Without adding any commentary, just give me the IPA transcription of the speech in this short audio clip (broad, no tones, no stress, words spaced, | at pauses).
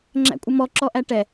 ŋ͡ǁæ̰kʷʼəmɔ ǁɔʔæʈɛ